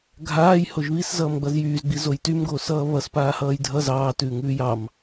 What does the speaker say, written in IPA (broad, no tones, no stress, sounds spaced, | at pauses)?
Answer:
ɡʱ aː j h o ʒ β i s z ʌː m ɡ͡b ʌ z j yː z ɡ͡b i z o j t y m ɡ oː s ʌː β ʌ s p aː h ʌː j dʱ ʌ z ɑː t ʉː ŋ ʉː j ɑ m